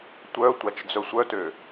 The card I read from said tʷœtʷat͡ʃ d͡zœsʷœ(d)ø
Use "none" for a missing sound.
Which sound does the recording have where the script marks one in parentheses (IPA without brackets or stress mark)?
t